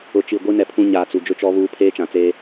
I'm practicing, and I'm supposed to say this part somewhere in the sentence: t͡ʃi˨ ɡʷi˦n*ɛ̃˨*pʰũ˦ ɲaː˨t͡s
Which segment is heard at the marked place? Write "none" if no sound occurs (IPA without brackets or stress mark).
ɛ˨